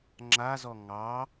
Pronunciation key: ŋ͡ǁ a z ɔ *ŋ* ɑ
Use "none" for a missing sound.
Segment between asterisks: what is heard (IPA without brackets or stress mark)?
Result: ŋ